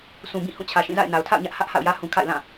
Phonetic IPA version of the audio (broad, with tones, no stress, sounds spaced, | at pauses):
s ũ˨ b ĩ˦˨ h ũ˦˨ t͡ɕʰ ä˨ ʃ ĩ˦˨ z a̰˦˨ ɪ̯ n a˨ ʊ̯ tʰ a̰˦˨ ʊ̯ ɲ ä˦ ʔ h ä˦ ʔ h a̰˦˨ ʊ̯ j ä˦ h ũ˨ kʰ a̰˦˨ ɪ̯ l ã˦˨